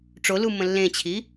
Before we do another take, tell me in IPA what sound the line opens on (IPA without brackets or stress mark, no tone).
ʈ͡ʂ